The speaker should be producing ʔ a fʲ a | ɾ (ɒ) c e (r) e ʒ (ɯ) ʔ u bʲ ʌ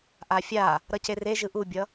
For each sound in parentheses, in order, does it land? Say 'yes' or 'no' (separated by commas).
no, yes, yes